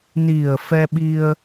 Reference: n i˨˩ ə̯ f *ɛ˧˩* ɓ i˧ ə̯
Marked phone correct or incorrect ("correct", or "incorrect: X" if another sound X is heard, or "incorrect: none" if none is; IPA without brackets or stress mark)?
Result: incorrect: ɛ˧